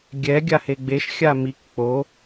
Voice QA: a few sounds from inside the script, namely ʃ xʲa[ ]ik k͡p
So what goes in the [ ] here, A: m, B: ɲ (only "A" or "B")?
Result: A